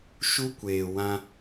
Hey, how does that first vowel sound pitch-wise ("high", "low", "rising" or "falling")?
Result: high